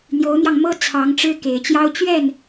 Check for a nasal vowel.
absent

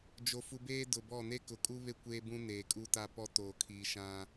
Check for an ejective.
present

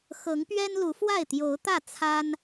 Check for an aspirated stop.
present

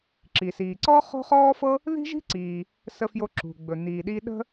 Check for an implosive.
present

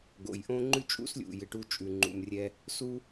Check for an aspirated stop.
absent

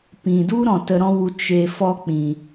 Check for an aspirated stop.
absent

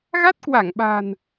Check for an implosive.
present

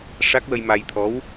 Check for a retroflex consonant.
present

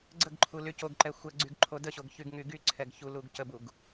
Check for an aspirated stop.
present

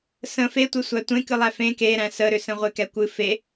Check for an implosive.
absent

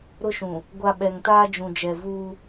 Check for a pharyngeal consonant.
absent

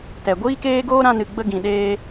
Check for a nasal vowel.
present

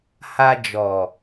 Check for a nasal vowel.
absent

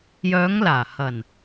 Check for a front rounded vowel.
present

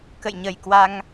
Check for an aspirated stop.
absent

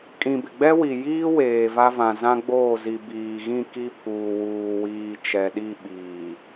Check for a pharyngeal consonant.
absent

